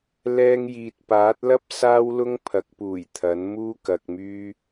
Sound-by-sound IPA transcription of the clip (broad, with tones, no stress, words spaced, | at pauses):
lɛː˧ŋjiː˨t̚paː˨˥t̚lɐ˥p̚ saː˥wlʊ˥ŋpʰɐ˨˥k̚puː˨˩j t̪ʰɐ˨˥n muː˥kɐ˧k̚myː˥